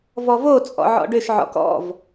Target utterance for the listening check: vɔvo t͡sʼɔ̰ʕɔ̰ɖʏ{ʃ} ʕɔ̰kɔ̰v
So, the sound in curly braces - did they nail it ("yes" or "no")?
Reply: yes